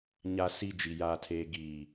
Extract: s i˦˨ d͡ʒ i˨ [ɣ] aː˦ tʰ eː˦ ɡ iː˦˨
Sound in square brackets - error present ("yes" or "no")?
yes